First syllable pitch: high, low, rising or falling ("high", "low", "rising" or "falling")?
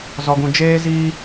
low